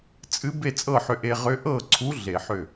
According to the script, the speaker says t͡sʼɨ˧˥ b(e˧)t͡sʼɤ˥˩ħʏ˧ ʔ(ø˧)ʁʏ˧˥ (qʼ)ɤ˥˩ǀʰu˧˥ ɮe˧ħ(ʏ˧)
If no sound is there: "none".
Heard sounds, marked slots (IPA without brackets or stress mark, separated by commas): e˥˩, e˧, ʔ, ʏ˥˩